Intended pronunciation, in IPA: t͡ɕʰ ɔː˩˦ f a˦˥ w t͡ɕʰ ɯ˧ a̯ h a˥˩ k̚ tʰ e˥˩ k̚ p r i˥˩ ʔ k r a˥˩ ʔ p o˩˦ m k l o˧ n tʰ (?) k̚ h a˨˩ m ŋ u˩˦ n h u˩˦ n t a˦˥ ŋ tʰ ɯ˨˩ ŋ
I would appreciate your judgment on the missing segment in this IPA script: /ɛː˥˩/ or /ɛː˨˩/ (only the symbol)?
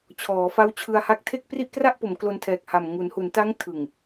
ɛː˨˩